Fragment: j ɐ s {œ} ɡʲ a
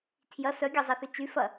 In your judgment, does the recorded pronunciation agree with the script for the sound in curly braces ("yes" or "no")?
yes